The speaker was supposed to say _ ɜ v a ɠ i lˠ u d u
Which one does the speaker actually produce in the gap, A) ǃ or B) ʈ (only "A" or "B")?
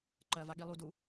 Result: A